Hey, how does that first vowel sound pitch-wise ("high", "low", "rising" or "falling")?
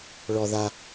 low